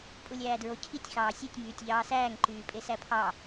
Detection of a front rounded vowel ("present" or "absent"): present